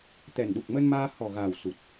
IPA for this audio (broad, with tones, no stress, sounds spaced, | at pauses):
t̪ ɛ˨˩ n ɗ u˨˩ k̚ m ə˧ n m aː˧ h ɔ˨˩ ɣ aː˨˩ w s u˨˩ t̚